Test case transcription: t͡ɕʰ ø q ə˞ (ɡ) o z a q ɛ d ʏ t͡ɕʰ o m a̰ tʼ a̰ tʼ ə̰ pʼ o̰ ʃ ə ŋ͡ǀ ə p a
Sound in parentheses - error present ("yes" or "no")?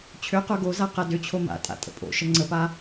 no